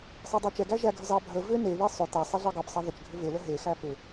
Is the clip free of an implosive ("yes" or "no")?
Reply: yes